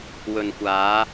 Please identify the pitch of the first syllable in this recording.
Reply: low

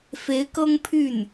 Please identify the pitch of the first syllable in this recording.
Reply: rising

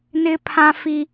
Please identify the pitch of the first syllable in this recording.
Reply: high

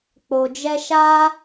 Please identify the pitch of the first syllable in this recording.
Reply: low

